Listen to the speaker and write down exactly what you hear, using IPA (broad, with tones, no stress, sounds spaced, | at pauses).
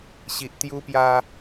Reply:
ɕ i˨ ʔ t̪ j u˧ p j a˧